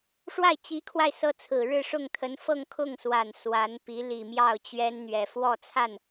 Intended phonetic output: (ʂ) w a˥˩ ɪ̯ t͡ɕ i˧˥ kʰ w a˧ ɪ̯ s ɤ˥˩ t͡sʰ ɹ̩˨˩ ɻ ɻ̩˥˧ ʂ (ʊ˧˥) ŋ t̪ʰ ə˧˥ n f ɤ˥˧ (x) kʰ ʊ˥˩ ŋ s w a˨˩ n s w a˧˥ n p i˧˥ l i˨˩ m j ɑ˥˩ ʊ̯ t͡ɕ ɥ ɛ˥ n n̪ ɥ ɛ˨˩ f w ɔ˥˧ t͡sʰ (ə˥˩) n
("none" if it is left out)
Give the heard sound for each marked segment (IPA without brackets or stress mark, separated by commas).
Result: ʂ, ʊ˥˩, ŋ, a˥˩